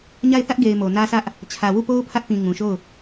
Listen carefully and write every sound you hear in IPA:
ɲ a˦˨ ɪ̯ θ ä˦ ʔ ɡ e˨ ɪ̯ m o˨ n ä˦ s ä˦ ʔ | t͡ɕʰ ä˨ w u˦˨ p o˦ ʊ̯ pʰ ä˦ ʔ p ĩ˨ ŋ ũ˨ ʃ o˦˨ ʊ̯

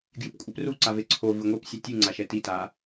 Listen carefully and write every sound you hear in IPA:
ɡ j ɨ p kʷʼ ɘ p r u ǀ a v e ǀʰ o v ɨ ŋʷ ɛ p sʲ ɐ tʲ ɨ ŋ͡ǀ a ʃ ɛ t i t a

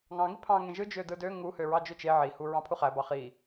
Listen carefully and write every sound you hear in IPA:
ŋ ɑ̃ ŋ i pʰ ɑ̃ ŋ ẽ ʒ ɯ d͡ʒ ø d ɯ d ø ŋ u h ø ɹ ɑ d͡ʒ ø t͡ʃ e ʕ i h u ɹ ɑ̃ pʰ u χ æ b ɑ χ i

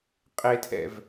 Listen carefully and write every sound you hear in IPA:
qʼ e tʰ ɛ̰ v

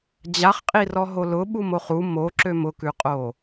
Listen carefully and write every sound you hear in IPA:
d͡ʑ a χ qʼ i r ɔ ɦ o l ʊ ɓ u m o χ u m o ǁ ø m ʊ k ʉ qʼ o

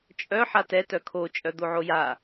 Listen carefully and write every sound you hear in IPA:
t͡ʃʼ œ ħ a t ɛ t œ kʰ o t͡ʃʼ œ d̪ o ʕ o j a

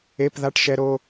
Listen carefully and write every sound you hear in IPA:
e˧˥˧ p ð a˧˥˧ ʈ ʃ ɛ˧ ɾ o˧

